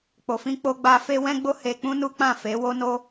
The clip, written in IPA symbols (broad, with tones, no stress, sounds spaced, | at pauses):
k͡p o˨ f ĩ˧ k͡p o˧ ɡ͡b a˧ f e˦ w ɛ̃˦ ɡ͡b o˦ h e˧ k͡p ũ˦ n u˦ k͡p ã˦˨ f e˨˦ w o˦ n o˦